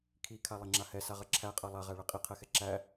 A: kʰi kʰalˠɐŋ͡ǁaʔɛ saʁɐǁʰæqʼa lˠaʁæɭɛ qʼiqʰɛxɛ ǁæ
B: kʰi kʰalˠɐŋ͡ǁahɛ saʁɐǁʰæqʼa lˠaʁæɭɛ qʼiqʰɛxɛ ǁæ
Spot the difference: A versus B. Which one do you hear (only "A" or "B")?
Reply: B